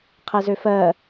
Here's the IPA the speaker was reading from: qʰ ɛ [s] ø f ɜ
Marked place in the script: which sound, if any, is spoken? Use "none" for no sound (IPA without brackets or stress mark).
z